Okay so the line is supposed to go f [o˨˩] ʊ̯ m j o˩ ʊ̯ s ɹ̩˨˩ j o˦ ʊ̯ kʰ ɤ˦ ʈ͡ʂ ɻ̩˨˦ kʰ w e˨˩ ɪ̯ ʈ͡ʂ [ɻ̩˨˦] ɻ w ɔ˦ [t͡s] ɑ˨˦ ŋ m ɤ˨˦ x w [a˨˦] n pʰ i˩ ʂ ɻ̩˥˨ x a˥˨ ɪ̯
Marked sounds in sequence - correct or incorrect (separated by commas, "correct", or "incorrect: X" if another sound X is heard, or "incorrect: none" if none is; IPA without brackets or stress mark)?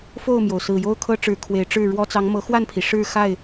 incorrect: o˥˨, incorrect: ɻ̩˥˨, correct, incorrect: a˥˨